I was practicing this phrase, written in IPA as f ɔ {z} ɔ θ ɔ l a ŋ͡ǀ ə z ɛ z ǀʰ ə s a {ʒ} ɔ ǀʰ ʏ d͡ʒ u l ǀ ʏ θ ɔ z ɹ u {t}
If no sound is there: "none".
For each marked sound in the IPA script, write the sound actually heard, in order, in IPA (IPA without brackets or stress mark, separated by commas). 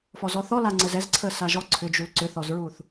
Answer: z, ʒ, θ